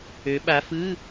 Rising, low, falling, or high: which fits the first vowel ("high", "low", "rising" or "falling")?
rising